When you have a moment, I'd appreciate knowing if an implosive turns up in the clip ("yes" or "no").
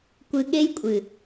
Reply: yes